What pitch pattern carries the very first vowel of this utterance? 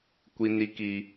high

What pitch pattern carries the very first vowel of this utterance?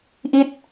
falling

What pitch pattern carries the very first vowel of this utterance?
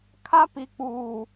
high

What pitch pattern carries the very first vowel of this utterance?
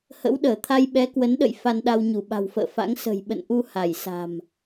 rising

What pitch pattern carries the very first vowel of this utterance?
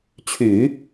low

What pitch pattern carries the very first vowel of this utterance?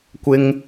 high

